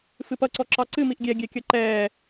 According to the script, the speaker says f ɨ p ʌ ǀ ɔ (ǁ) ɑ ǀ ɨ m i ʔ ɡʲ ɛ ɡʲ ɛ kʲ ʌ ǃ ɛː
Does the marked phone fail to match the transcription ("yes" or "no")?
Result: no